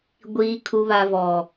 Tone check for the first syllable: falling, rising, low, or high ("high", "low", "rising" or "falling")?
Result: low